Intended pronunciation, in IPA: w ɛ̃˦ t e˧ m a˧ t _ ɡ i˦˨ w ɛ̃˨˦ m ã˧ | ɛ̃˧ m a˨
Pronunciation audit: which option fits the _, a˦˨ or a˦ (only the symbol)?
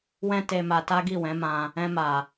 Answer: a˦